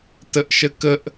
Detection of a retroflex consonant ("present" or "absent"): absent